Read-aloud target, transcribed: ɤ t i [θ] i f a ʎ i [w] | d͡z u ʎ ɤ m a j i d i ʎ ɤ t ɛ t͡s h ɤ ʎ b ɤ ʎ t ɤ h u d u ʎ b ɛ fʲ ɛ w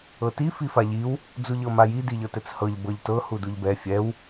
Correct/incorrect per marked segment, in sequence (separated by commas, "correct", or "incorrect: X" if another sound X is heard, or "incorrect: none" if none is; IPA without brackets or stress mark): incorrect: f, correct